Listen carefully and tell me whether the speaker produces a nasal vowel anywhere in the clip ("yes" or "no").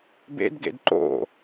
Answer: no